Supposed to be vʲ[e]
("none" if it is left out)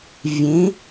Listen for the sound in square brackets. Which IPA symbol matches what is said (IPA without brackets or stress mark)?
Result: ẽ